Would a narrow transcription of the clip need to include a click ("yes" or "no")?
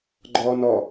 yes